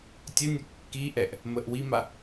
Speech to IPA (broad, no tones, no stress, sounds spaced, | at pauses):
tʲ ə nʲ ə kː i ʔ ɛ ʔ | m ə ʔ w i m a